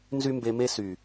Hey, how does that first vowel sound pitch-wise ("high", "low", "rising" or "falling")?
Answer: high